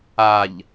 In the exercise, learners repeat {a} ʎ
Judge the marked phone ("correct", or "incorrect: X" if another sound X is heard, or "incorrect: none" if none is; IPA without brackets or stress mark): correct